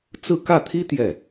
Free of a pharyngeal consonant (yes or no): yes